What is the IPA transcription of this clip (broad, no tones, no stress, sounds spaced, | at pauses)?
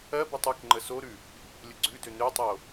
ɜ b o tˤ ʉ k ŋ͡ǃ ə s o ɾ ʉ | lʲ ə ɡ͡ǀ ʉ d ø n ø tˤ o